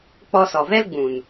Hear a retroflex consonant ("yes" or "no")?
no